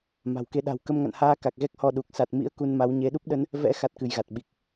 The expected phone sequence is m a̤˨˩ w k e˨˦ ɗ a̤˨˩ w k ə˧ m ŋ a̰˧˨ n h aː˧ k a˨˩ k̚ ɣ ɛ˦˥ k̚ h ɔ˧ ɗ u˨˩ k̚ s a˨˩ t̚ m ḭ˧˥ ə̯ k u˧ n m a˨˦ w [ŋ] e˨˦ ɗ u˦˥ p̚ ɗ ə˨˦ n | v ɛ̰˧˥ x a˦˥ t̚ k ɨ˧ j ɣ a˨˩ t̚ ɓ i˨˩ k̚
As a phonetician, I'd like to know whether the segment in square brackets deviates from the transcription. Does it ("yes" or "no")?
yes